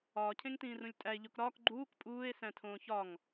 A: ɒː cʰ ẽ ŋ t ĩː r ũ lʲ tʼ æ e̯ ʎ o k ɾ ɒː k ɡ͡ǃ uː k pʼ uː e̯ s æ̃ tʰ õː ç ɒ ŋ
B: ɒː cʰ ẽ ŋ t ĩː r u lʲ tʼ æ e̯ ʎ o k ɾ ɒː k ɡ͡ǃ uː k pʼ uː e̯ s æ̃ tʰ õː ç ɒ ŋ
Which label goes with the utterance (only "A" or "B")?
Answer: A